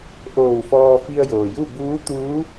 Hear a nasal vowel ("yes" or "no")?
no